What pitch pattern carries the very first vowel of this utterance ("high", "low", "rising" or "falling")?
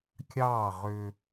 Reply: falling